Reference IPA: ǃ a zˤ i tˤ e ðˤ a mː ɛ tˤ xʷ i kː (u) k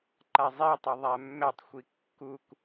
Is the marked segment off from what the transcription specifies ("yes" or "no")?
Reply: no